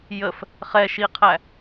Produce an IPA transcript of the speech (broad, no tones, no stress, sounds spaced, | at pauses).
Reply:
j ə f | χ ɛ ʃ i qʰ æ